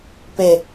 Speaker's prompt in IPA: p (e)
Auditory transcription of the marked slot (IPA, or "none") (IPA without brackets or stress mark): e